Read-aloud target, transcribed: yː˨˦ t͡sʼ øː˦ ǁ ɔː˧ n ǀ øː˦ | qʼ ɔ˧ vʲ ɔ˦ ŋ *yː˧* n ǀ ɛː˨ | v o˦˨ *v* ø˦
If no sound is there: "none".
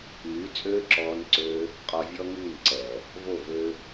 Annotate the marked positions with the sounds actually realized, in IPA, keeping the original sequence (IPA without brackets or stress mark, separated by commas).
yː˦˨, v